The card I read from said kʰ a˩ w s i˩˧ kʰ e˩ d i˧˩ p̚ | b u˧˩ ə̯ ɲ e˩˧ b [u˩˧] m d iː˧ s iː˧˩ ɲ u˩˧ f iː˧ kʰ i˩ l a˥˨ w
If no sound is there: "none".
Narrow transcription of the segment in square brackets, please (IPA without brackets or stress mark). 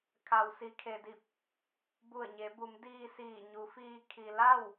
u˩˧